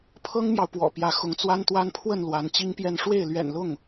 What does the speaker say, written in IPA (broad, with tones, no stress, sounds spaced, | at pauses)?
pʰ ɤ˥ ŋ m j ɑ˨ ʊ̯ p w ɔ̰˨˩ p j ä˧˥ x ʊ˧˥ ŋ t͡s w a˥ n t̪ w a˥ n pʰ w ə˥˩ n l w a˧˥ n t͡ɕ i˥ ŋ p j ɛ˥˧ n ʂ w e˥˩ ɪ̯ l ɥ ɛ̰˨˩ n l ʊ˥˩ ŋ